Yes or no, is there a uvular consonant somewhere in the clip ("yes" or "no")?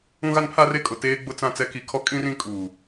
no